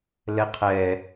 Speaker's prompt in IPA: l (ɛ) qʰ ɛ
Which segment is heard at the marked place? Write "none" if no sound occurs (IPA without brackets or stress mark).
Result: ɛ